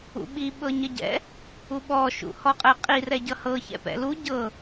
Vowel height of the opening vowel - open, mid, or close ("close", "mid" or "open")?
close